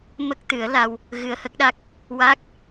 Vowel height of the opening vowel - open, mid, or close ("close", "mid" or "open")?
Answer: mid